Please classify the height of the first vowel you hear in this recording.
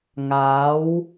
low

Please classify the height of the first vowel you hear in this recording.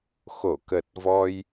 mid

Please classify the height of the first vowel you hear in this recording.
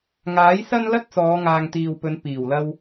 low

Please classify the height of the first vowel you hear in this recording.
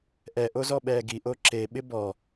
mid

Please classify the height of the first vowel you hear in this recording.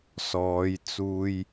mid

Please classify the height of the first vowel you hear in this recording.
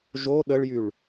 mid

